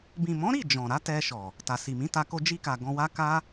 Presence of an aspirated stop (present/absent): absent